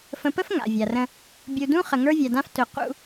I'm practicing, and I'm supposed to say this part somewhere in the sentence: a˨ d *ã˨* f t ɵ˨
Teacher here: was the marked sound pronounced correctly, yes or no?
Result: no